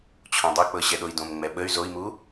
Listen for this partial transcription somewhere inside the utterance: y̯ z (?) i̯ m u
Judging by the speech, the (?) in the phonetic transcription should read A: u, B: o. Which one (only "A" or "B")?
B